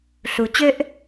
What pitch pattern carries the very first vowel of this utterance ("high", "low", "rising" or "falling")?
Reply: low